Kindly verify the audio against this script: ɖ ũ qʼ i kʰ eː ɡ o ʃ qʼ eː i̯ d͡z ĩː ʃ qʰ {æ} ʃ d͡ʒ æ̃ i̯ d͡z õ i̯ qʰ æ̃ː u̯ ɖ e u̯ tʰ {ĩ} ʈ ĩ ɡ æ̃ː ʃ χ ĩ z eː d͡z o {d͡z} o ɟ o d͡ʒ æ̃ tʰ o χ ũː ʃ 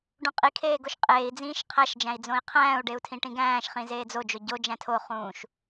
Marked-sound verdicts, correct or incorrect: correct, correct, incorrect

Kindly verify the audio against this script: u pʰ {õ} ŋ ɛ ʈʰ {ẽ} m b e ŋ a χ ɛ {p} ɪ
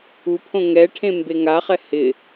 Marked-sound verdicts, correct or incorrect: correct, correct, incorrect

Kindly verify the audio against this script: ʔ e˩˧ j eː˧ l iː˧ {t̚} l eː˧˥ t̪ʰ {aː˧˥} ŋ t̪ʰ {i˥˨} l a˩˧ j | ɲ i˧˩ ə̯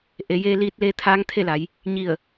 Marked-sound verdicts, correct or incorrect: correct, correct, incorrect

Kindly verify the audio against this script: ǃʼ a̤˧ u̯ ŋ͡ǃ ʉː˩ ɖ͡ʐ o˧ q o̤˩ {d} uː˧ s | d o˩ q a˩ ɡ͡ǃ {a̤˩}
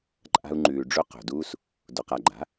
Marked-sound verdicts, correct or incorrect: correct, incorrect

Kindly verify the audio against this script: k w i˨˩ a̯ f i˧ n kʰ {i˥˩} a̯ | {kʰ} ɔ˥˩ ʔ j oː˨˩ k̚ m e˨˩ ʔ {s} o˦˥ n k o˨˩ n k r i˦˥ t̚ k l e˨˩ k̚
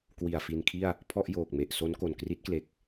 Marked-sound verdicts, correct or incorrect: correct, incorrect, correct

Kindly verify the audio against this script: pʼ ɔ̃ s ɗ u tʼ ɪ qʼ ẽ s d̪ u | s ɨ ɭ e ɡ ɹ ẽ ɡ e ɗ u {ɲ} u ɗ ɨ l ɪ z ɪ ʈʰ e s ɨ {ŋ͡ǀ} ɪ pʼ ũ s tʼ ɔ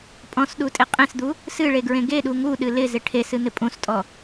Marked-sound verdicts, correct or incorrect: incorrect, incorrect

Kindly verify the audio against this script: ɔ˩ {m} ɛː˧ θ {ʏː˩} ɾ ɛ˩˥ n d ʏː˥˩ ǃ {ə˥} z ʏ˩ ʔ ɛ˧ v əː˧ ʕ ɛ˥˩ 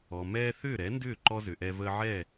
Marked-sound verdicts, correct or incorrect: correct, incorrect, incorrect

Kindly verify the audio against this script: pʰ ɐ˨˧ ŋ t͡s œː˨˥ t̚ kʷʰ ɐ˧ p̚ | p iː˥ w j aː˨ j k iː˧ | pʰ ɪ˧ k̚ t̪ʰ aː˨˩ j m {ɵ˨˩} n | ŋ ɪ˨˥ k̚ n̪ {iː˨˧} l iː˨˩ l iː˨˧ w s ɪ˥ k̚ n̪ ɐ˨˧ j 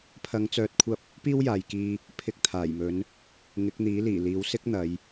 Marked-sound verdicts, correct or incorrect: incorrect, incorrect

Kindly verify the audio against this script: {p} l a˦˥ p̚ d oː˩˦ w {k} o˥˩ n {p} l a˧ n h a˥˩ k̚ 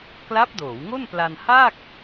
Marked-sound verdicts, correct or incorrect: incorrect, incorrect, correct

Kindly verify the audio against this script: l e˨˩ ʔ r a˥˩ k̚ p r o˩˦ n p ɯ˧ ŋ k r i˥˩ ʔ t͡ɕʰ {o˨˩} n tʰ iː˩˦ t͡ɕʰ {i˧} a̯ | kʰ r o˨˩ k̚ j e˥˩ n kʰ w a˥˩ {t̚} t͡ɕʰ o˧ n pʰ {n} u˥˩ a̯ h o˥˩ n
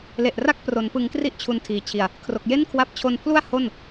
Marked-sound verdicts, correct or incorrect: incorrect, incorrect, incorrect, incorrect

